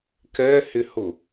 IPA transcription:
kɛhɪhʊ

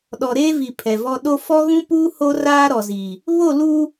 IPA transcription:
ɗɔ˨ɾeː˦vi˨ pʰɛ˨vɔ˦ ɗo˦ fɔ˦ɣũ˦puː˦ ho˦raː˦ ɾɔ˨ziː˨ | βo˦˨luː˦

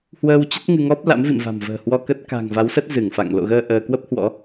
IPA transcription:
hwəː˧wt͡ɕə˦˥t̚ ŋɨ˧ŋɔ˦˥p̚ la̰˧˥mvḭ˧˨mva̤˨˩mvə̤ː˨˩ hwɔ˧kə˦˥t̚ ka̤˨˩ŋva˨˦wsə˦˥t̚ zɨ˧˩ŋfa̰˧˨ŋ lo̰˧˨ɣəː˧ ʔəː˧ kwə˦˥p̚hwɔ̰˧˥

